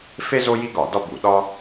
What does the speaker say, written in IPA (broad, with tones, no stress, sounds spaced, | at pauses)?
f e˥ z o˥ j i˥ ɡ ɒ˧˩˧ d ɒ˥ b u˧˩˧ ɗ ɒ˥